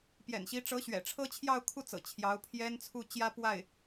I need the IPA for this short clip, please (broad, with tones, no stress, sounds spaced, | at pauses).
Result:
p j ɛ̰˨˩ n ɕ i˧˥ ʈ͡ʂ ɤ˧˥ ɕ ɥ ɛ̰˨˩ ʈ͡ʂʰ ɤ˥ t͡ɕʰ j ɑ˥˧ ʊ̯ kʰ u˥˩ t͡s ɤ̰˨˩ t͡ɕʰ j ɑ˧˥ ʊ̯ pʰ j ɛ˥ n t͡sʰ u˥˩ t͡ɕ j ä˥ p w a˥˩ ɪ̯